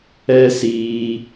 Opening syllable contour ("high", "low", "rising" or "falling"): high